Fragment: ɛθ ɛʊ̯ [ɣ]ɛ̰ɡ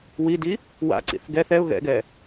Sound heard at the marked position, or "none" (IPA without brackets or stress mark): ɣ